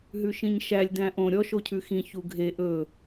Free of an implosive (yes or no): yes